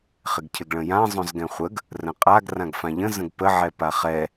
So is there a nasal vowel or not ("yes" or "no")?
yes